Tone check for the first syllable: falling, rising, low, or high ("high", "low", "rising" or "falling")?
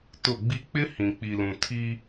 falling